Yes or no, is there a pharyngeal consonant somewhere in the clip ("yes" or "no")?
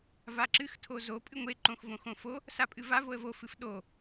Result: no